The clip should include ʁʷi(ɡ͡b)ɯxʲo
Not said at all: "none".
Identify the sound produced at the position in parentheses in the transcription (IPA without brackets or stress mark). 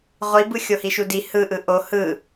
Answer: b